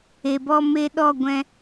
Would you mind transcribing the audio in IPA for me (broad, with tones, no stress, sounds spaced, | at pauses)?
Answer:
e˨ b ɔ˧ m e˧ ɗ ɔ˦˨ ɡʷ ɛ̃˧